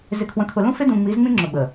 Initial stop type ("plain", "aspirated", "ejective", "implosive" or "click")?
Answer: aspirated